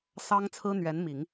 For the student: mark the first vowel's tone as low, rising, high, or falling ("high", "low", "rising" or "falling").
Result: high